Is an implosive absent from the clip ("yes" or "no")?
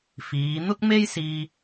yes